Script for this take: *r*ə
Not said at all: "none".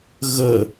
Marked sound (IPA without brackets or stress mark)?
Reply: ɣ